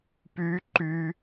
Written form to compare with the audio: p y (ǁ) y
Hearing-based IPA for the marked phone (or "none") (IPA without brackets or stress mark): ǃ